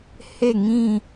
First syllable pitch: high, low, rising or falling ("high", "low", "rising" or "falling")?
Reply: falling